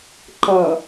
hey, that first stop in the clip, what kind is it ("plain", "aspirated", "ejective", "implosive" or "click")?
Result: click